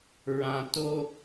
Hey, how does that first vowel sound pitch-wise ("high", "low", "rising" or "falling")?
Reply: high